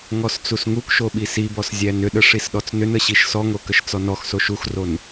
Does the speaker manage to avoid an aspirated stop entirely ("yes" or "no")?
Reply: yes